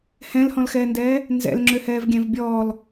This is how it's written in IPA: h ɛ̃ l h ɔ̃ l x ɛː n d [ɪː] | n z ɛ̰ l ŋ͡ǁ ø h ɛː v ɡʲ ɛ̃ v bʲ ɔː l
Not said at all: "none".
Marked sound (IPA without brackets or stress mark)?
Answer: ɛː